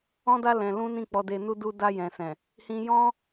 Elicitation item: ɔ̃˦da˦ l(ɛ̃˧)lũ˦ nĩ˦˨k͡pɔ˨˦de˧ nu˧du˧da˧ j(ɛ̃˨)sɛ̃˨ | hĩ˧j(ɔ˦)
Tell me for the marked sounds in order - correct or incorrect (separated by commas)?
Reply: correct, correct, incorrect